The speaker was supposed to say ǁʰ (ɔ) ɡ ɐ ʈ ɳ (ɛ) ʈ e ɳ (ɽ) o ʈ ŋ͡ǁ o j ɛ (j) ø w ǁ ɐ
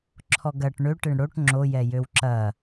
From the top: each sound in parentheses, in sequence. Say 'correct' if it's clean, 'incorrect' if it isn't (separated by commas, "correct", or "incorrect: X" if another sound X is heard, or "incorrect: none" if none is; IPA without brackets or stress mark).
correct, incorrect: ø, correct, correct